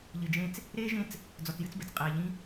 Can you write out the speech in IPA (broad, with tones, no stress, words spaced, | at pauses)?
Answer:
ʎɨ˨d͡ʒẽ˦t͡s | ɾeː˥ʒẽ˦t͡s | d͡zɔ˨t͡sjɨ˦t͡sbɛ˩t͡s qʼeː˨ʎĩ˦